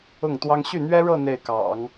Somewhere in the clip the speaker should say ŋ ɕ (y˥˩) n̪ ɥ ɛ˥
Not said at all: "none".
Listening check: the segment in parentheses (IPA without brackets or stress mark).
y˥˩